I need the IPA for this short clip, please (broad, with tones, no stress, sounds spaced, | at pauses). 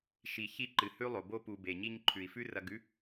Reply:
ʃ i˨ ç i˧ ǃ ɨ˨ h ʉ˦ lˠ o˨ b o˦ p u˨ b e˨ ɲ i˧ ɲ ǃʰ ʉ˨ i̯ f ʉ˦ r ɐ˧ ɡ ʉ˦